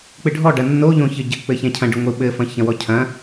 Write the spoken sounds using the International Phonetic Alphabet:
k͡p ɨ ɖʱ ɔ ɖ ɐ nː o ʎ õ ç ɘ ɟ ɘ k͡p ɘ ç ɛ̃ cʰ ɐ̃ ɖ ɨ ŋʷ ɨ ɓ ɘ f ɐ̃ ç ɐ̃ w ɔ cʰ ɐ̃

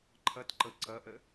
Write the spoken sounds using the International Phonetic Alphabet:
ǃʰ ʌ t ǃ ɤ ǀ ʌ ʔ ə

